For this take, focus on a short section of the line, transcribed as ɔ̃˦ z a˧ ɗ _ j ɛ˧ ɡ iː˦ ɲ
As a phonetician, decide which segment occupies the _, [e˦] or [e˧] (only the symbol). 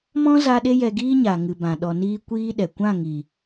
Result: e˦